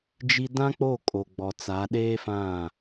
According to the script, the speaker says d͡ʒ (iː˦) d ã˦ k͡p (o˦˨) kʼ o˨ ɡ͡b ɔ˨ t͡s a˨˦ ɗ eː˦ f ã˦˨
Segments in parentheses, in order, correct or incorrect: incorrect: i˦, correct

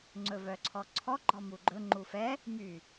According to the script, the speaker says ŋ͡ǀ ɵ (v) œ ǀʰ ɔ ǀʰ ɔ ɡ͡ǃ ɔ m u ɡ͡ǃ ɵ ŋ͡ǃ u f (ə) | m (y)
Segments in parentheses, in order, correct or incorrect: correct, incorrect: ɛ, correct

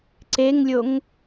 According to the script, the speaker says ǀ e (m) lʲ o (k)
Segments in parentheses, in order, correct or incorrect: incorrect: ŋ, incorrect: ŋ

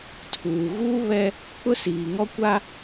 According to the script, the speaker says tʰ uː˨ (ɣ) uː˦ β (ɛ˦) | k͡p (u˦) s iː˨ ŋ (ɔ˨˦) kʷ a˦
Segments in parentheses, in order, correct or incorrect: correct, correct, incorrect: ʊ˦, incorrect: ɔ˦

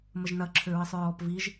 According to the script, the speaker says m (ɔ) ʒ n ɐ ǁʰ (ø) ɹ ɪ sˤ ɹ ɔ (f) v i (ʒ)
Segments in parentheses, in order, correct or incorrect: incorrect: ə, correct, incorrect: p, correct

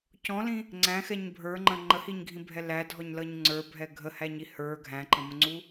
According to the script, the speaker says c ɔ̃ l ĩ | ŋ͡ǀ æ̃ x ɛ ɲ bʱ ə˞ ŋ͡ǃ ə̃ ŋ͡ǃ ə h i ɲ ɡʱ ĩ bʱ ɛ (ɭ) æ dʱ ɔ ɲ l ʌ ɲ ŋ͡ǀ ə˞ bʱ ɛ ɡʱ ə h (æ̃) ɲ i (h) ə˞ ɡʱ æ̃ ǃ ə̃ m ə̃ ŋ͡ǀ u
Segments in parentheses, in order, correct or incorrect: incorrect: l, incorrect: æ, correct

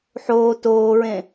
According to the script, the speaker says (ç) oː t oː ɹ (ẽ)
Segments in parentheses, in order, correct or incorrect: incorrect: ħ, correct

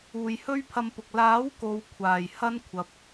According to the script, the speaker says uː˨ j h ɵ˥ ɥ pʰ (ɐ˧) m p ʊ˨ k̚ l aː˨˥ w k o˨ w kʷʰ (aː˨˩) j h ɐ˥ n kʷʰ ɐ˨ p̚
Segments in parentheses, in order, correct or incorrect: correct, correct

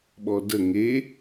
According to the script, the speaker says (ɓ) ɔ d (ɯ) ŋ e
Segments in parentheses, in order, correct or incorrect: correct, incorrect: ə

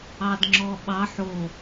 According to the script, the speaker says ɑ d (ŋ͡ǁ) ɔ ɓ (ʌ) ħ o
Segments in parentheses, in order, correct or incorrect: correct, incorrect: ɑ

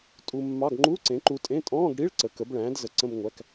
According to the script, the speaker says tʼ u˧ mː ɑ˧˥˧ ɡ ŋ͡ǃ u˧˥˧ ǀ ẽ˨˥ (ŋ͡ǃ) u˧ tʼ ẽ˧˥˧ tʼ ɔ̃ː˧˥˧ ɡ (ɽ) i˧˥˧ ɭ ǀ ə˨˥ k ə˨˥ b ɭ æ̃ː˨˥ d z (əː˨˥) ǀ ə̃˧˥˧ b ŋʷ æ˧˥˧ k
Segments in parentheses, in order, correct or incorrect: incorrect: ǃ, correct, incorrect: ə˨˥

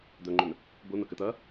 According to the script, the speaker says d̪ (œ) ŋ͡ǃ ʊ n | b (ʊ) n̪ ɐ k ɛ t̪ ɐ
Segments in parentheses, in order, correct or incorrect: correct, correct

